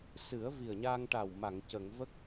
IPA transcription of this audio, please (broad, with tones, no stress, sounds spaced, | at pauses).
s ɨ˨˩˦ ə̯ v i˨˩ ə̯ ɲ aː˧ ŋ ʈ a˨˩ w m a˨˩˨ ŋ c ə˨˩˨ ŋ v ə˦˥ k̚